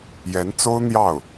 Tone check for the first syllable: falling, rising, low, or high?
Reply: rising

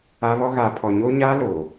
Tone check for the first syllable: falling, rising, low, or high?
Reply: high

